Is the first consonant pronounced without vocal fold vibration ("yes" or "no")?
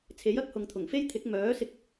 yes